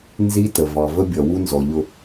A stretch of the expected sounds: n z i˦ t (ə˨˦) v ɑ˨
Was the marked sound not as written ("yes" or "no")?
yes